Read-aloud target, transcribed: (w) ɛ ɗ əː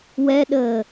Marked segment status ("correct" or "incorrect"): correct